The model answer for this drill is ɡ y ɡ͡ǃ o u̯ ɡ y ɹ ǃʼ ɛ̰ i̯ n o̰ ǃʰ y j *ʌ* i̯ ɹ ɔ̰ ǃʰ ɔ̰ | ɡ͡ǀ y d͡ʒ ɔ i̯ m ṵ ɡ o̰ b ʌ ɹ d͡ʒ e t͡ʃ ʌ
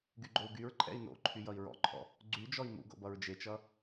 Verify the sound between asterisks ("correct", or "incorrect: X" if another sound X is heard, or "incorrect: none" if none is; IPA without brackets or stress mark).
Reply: correct